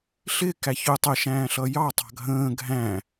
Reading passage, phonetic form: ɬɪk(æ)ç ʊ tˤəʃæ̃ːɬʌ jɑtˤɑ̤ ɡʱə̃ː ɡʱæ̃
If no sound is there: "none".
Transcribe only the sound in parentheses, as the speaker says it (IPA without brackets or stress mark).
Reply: æ